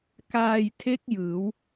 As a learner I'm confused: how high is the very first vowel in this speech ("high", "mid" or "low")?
low